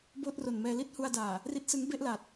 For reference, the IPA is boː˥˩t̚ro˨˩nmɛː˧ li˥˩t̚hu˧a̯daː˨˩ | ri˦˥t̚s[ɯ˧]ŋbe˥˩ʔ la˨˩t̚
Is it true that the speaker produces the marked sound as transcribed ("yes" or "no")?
no